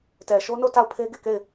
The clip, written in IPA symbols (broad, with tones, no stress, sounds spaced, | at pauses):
t ɛ˨ ʃ o˦ n o˦˨ t a˦˨ ʊ̯ pʰ e˦ ɡ e˦˨ k e˦˨ ɪ̯